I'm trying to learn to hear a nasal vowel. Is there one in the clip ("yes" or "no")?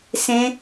yes